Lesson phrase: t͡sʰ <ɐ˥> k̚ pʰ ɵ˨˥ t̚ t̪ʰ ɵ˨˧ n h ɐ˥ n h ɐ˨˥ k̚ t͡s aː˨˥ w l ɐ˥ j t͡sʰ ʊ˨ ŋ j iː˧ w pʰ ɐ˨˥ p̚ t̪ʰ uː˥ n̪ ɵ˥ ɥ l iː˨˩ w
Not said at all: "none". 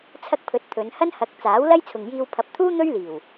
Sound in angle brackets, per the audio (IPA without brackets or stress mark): ɐ˥